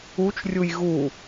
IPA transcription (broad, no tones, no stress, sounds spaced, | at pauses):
u t͡ʃ rʲ u j ɣ u